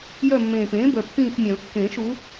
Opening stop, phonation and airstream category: plain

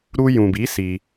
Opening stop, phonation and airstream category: plain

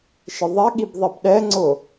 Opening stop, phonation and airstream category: implosive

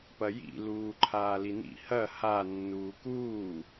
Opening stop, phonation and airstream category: plain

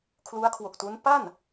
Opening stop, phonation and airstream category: aspirated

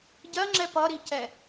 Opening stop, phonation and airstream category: plain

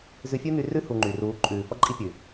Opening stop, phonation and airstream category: click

